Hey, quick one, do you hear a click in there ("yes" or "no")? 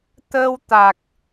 no